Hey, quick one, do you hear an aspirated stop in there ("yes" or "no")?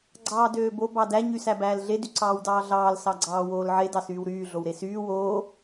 no